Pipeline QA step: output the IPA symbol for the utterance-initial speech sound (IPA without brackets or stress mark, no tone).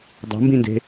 dˤ